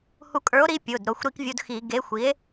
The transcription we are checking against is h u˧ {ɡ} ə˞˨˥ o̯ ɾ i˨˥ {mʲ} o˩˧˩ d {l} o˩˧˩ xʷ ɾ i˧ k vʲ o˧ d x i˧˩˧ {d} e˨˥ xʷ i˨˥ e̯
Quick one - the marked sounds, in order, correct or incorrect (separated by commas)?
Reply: incorrect, incorrect, incorrect, incorrect